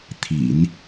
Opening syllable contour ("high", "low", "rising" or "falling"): low